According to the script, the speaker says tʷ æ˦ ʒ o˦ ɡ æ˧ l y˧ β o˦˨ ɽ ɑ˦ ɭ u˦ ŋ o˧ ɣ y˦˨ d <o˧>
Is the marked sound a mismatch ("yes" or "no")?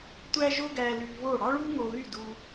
yes